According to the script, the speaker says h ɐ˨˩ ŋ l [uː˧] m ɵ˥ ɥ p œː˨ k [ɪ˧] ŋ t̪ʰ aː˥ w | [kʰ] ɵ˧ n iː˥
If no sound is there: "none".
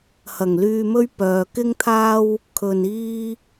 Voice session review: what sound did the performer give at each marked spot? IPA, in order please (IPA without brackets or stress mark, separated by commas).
yː˧, ɪ˥, kʰ